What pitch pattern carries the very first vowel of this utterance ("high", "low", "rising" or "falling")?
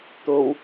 low